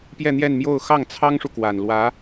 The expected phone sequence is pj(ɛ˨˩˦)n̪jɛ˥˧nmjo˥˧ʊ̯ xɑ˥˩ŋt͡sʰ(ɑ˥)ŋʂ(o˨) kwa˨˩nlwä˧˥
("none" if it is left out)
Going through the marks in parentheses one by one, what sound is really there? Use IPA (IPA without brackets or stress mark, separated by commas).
ɛ˥˧, ɑ˥, u˨